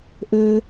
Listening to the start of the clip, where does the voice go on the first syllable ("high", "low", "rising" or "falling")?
low